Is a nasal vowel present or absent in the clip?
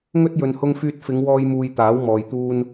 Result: absent